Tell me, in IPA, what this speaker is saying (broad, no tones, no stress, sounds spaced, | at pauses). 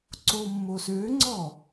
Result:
ǀ o mː o s ø ŋ͡ǀ ɔ